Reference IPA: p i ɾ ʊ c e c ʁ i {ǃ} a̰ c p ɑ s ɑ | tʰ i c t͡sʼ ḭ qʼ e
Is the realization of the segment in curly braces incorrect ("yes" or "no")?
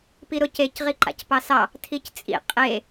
no